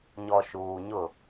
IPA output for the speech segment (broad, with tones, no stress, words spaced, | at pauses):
ɲɔ˨ ʃuː˨ɲʊ˦˨